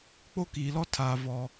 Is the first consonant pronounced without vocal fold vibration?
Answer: yes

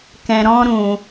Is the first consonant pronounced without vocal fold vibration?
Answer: yes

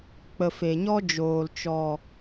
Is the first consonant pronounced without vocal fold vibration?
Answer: yes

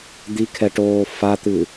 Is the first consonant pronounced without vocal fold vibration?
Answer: no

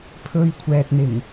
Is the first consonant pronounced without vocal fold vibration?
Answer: yes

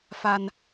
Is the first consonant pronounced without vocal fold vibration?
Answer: yes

